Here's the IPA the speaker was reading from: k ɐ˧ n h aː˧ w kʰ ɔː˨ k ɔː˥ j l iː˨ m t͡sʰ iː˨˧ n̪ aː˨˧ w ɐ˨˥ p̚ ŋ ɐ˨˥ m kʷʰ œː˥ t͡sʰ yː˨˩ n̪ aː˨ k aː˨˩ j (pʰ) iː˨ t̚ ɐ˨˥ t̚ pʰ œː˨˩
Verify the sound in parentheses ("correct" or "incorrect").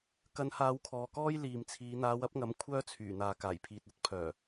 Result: correct